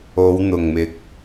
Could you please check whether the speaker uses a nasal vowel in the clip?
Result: no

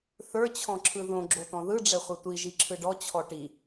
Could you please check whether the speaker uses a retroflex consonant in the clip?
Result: yes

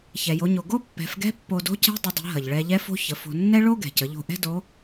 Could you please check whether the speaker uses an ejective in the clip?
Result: no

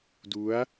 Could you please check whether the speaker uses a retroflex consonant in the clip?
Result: no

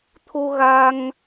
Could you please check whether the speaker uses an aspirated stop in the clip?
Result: yes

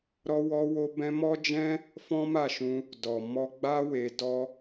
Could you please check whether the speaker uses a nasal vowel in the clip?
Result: yes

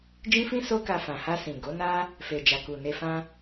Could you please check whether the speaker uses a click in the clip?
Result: no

